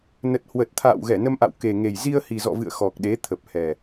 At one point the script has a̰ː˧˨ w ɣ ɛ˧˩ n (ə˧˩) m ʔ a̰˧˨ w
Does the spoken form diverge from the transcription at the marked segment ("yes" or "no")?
yes